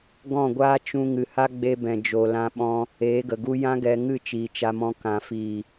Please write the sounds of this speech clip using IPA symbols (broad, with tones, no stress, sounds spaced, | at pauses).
ɡ ɔ̃˦˨ ɡʷ aː˦ t͡ʃ ũ˦ ŋ ɨ˨ h a˦ ɡ͡b e˧ b ɛ̃˨ d͡ʒ o˨ l ã˧ ɓ ɔ̃˧ | eː˨˦ ɡ ə˨ ɡ u˦ j ã˦ ɡ ɛ˧ ŋ ɨ˦˨ t͡ʃ iː˨ t͡ʃ a˧ m ɔ̃˧ k ã˧ f iː˨